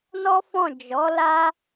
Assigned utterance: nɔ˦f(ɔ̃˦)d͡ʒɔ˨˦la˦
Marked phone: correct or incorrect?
incorrect